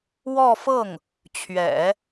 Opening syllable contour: falling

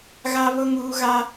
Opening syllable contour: high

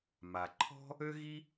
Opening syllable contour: low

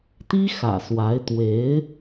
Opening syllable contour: high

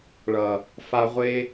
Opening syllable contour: low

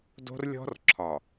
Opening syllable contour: high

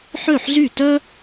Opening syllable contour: falling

